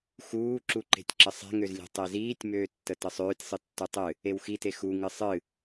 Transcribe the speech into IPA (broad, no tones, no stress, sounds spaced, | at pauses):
x uː ǁ u ǃ e̤ tʲ ǁ ə sˤ e̤ ŋ ø z lʲ e̤ tˤ e z iː tʲ m øː tː ə t ə sˤ øː tʲ sˤ ɨ tː u tˤ ɨ | e w x i t e x u ŋ ɨ sˤ ɨ